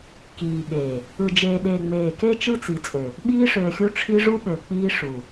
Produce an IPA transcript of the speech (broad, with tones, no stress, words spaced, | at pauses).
kiː˨ɓeː˨ | ɯ˨d͡ʒeː˨ɗeː˨ ŋ͡meː˨ke˦ t͡ʃɯ˦t͡si˨t͡sʼø˨ | ɓiː˦ʂøː˨xʲu˦ʈ͡ʂʰi˦ ʐu˦ɓø˨ k͡piː˦ ʂu˨